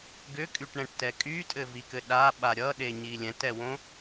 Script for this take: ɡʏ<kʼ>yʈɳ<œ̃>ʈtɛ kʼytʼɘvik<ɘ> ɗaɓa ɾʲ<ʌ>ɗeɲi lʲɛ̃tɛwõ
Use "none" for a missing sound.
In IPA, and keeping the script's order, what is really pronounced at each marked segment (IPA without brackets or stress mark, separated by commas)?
kʼ, ɛ̃, ɘ, ʌ